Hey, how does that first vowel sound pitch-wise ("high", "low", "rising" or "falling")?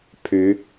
rising